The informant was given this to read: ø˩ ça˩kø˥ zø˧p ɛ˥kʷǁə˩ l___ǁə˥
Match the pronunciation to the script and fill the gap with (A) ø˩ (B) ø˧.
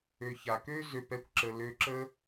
B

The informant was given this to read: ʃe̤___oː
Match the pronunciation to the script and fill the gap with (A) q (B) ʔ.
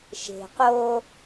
A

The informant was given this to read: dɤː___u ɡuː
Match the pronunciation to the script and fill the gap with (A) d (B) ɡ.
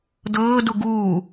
A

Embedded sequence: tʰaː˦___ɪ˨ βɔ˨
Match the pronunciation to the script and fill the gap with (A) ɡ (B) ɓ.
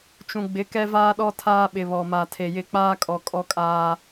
B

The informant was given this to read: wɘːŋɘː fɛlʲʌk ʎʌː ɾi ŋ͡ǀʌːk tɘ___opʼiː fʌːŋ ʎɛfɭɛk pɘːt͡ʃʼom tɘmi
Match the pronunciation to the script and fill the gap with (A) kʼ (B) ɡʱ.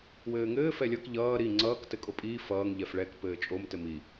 A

